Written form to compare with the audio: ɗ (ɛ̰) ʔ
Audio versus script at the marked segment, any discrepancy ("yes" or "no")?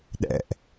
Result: no